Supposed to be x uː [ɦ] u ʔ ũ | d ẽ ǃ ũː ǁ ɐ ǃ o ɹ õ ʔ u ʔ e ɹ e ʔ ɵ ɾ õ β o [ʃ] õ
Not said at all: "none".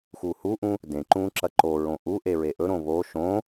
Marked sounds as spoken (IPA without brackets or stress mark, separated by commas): h, ʃ